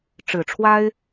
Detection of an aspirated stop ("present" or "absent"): present